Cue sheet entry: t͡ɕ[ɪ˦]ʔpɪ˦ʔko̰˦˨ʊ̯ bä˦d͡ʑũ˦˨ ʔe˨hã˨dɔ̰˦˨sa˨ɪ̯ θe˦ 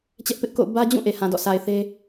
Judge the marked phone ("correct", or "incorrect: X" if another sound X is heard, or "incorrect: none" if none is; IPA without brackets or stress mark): incorrect: ɛ˦